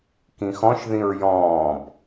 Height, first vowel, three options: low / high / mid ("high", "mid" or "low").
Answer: high